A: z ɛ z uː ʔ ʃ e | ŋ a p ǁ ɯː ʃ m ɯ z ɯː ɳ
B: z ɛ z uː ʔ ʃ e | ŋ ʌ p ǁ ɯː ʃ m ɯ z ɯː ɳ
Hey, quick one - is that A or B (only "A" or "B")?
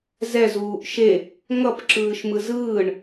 B